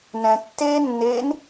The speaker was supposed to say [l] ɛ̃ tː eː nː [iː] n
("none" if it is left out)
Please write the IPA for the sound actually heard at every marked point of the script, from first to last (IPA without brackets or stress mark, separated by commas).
n, eː